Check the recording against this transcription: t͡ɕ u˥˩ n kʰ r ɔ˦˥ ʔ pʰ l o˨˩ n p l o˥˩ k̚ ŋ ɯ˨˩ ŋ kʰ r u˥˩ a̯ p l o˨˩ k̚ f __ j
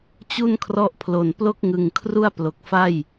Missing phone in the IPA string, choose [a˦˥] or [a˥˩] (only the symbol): a˥˩